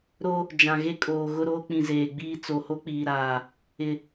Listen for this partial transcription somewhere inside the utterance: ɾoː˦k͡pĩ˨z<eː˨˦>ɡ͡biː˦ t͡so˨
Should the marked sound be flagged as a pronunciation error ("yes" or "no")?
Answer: yes